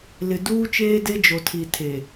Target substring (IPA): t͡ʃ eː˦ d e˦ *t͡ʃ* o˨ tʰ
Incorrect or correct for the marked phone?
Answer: incorrect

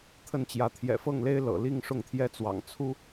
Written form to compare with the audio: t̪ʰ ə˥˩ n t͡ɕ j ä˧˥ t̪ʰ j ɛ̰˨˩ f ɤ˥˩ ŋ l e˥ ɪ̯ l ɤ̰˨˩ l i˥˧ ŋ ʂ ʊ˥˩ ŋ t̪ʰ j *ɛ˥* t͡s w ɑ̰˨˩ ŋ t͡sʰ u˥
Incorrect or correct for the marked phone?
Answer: correct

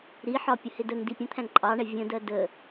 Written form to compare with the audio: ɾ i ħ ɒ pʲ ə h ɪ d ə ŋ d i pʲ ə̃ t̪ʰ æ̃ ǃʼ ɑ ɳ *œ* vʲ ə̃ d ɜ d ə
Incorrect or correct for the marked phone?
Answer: incorrect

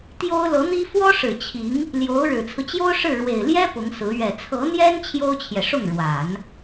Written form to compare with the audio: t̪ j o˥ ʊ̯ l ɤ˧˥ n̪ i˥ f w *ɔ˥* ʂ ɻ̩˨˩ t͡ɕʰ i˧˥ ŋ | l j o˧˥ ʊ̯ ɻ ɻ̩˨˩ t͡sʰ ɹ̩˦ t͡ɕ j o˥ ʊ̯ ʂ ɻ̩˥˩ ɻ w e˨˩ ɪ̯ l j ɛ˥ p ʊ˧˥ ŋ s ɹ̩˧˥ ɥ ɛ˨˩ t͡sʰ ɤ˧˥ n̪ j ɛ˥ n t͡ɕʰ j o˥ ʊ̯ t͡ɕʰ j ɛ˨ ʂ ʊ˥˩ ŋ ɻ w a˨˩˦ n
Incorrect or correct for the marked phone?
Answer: correct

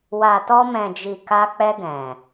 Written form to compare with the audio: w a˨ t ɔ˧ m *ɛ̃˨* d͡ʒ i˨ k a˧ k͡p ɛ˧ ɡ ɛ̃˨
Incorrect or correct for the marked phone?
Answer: correct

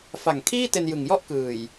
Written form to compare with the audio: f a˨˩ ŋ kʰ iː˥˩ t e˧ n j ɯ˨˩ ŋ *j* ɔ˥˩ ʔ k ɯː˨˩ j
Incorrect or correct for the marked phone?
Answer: correct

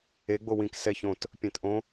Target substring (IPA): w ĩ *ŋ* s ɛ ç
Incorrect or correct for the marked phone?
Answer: incorrect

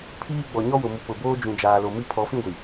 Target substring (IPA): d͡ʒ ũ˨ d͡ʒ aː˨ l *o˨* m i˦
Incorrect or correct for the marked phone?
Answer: correct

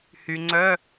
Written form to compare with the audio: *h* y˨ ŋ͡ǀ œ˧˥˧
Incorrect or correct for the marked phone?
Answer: correct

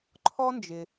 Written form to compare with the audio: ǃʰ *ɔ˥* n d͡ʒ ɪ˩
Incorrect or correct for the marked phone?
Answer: correct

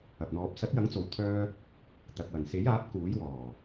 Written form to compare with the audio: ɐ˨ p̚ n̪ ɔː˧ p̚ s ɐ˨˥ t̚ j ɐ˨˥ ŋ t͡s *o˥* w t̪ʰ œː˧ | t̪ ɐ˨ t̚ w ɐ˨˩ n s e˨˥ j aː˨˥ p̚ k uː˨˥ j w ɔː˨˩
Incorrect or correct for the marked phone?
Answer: incorrect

